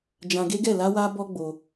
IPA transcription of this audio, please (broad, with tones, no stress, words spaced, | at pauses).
d͡ʒã˧ɡe˦ɡɛ˦˨ la˧wa˧bɔ˧ ɡ͡bo˧